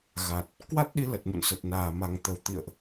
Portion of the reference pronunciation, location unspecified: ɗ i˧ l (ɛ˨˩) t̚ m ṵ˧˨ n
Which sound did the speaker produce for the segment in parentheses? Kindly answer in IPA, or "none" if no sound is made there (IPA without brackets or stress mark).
ə˨˩